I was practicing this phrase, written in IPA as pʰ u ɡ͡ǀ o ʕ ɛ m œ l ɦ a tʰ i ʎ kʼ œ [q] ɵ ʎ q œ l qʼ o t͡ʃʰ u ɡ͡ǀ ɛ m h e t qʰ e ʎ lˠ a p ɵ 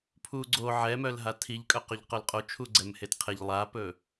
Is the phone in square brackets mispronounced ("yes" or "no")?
no